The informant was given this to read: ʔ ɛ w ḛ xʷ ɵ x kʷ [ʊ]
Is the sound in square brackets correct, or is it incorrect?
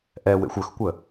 incorrect